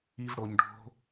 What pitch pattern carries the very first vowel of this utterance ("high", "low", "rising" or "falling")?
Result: high